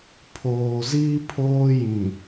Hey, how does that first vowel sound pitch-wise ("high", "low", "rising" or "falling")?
low